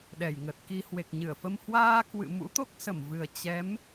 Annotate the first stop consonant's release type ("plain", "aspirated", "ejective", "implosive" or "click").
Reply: implosive